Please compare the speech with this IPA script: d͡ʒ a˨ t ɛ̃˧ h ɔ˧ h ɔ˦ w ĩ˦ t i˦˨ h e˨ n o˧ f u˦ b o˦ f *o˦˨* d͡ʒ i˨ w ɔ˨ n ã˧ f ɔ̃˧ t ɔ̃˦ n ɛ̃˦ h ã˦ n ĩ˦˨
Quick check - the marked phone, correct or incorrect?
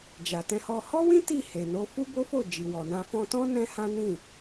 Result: correct